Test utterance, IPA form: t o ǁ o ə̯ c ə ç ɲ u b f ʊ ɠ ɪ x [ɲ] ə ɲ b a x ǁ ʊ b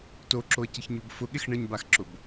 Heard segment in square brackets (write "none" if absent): ɳ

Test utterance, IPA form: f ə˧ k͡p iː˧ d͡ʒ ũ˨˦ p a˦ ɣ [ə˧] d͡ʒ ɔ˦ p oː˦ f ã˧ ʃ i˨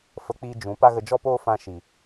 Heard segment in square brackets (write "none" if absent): ə˧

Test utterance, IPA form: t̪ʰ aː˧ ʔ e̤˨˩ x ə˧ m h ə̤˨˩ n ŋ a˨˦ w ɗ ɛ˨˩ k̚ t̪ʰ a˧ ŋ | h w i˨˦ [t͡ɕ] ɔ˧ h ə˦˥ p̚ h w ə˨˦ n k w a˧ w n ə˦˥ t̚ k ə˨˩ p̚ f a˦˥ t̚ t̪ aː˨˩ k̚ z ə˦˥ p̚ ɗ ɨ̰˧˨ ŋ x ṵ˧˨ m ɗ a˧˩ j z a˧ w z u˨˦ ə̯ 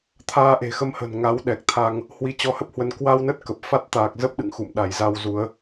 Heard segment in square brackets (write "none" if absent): t͡ɕ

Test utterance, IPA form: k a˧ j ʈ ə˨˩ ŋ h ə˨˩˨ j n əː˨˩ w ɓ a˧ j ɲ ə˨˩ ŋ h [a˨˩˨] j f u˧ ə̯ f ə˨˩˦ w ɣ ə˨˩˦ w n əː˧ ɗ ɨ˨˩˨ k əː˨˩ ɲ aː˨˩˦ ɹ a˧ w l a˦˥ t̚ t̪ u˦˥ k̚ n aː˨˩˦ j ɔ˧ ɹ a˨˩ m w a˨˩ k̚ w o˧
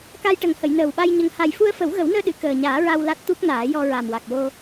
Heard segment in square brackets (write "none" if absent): a˨˩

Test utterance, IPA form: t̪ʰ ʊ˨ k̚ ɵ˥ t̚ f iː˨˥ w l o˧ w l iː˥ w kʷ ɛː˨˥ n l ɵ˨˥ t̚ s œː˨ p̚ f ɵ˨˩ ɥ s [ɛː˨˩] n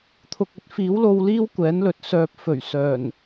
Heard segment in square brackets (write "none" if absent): œː˨˩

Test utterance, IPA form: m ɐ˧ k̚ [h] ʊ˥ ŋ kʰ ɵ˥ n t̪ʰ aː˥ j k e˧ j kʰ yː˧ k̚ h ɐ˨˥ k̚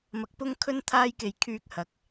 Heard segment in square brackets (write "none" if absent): p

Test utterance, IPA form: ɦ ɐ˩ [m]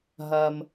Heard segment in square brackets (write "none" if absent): m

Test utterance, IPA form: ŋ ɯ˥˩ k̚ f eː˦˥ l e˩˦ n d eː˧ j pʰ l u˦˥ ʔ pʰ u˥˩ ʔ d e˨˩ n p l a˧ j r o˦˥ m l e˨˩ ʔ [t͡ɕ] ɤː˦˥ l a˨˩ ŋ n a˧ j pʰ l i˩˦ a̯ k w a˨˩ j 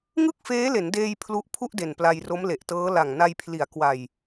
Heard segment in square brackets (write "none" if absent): t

